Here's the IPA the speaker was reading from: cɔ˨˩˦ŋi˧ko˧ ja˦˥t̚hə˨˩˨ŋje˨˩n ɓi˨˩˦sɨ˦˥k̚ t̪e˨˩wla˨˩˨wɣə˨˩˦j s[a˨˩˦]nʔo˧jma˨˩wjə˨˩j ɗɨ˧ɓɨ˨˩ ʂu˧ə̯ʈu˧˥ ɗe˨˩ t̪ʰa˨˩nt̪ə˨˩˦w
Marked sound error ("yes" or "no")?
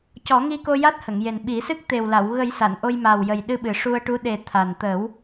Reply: yes